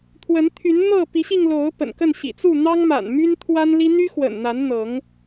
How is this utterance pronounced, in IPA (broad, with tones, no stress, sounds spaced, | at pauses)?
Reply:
t̪ʰ w ə˨˦ n t̪ʰ y˨˦ n n̪ ɤ˥˨ p i˨˦ ɕ i˧ ŋ l o˨˦ ʊ̯ p ə̰˨˩ n k ə˥˨ n ɕ ḭ˨˩ t͡s u˥˨ n̪ ɑ˦ ŋ m a̰˨˩ n m y˦ n t̪ʰ w a˦ n l i˦ n̪ y˦ x w ə̰˨˩ n n̪ a˨˦ n n̪ ɤ˨˦ ŋ